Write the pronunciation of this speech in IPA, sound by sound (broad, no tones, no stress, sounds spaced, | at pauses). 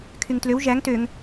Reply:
kʰ y ŋ t l ø w ʒ æ ŋ t ø ŋ